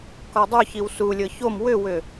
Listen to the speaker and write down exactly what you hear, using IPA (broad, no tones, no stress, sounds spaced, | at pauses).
k ɒ dˤ u ç i w s u lʲ ɤ ç o m w ʏ w ʏ